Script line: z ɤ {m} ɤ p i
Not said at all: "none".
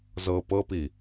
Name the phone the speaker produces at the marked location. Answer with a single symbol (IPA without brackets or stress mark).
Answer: p